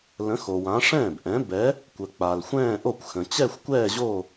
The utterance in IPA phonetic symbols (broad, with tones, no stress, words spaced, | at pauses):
lə̃˨˥xo˨ wã˨˥ ʂɛ̃ː˥˩bʔɛ̃˨˥ bɛ˨˥ | kʷə˨k͡pa˨lxʷɛ̃ː˥˧ʔo˥˩kʷ xə̃˨ t͡ɕɛ˥˧xʷkʷɛː˥˧ʑo˥˧